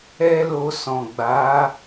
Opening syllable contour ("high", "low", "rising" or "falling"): high